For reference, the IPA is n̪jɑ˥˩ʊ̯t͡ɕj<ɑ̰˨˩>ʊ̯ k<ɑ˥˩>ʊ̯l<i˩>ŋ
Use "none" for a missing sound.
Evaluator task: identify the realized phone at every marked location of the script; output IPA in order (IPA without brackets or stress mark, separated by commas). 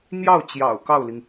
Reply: ɑ̰˨˩, ɑ˥˩, i˩